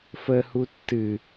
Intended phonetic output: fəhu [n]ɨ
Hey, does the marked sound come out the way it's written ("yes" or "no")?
no